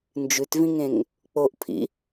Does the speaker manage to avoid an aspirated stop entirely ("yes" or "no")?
no